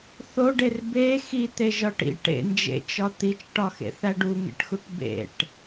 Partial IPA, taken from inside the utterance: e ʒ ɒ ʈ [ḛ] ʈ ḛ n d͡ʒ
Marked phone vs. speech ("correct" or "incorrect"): incorrect